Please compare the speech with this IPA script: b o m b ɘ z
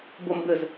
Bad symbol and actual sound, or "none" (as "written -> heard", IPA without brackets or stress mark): none